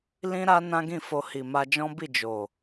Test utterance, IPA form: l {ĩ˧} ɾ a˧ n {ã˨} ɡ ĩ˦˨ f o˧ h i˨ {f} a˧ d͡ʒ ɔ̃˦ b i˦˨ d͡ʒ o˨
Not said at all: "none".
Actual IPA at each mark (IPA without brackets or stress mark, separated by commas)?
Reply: ĩ˧, ã˦, m